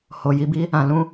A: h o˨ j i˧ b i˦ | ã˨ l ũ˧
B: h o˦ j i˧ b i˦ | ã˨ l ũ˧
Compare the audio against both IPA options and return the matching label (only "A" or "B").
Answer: A